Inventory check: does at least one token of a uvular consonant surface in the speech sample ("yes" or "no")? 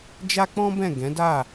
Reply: no